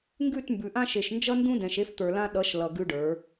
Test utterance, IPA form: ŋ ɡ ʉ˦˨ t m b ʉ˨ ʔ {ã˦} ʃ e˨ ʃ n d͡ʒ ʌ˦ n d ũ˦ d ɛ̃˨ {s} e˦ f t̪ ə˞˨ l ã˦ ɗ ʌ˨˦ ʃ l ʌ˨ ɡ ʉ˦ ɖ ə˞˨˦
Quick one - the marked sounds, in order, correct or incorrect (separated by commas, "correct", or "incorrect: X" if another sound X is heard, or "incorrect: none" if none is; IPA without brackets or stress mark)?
correct, incorrect: ʃ